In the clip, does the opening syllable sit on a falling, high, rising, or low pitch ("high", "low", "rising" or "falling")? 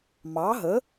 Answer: rising